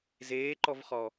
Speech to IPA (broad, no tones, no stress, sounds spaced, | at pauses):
z eː ǃ ɔ v χ ɔ